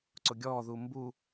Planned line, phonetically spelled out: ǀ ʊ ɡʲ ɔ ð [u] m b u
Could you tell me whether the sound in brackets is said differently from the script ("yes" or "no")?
no